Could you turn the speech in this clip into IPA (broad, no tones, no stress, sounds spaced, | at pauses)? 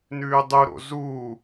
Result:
n ʉː dˤ u ɾ o̰ z u